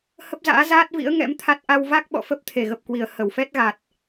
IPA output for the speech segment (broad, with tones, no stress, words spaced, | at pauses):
hə˦˥p̚za̰ː˧˥zaː˦˥t̚vḭ˧˥ə̯ ŋɛ̰˧˥mt̪ʰa˦˥t̚ ʔa˧wva˦˥k̚ɓɔ̰˧˨fə˦˥p̚ t̪ʰe˧˩ɣə˨˩p̚kwi˧˩ə̯ hə˧˩wfɛ˦˥t̚ɣa˨˩t̚